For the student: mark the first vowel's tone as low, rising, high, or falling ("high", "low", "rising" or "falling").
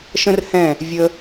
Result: high